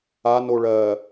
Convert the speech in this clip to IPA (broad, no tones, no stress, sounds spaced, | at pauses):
a n o ɭ ɜ